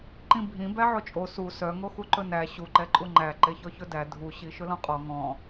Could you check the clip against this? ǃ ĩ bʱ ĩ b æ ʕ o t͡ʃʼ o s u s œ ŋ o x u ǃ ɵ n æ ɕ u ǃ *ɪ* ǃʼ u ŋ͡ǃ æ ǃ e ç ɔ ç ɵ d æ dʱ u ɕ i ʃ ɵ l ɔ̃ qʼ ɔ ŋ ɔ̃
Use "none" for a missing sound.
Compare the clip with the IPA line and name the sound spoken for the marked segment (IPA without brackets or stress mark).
ɛ